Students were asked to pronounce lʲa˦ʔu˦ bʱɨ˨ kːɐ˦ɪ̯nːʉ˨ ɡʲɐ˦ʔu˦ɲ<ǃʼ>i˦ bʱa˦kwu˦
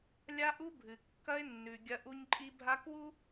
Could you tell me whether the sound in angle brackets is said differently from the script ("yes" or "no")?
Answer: no